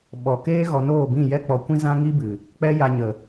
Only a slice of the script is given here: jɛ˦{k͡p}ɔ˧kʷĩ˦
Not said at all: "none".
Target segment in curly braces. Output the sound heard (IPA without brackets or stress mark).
k͡p